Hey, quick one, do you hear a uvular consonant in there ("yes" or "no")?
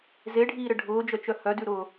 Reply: no